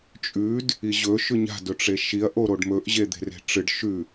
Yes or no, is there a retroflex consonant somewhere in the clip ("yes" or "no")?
yes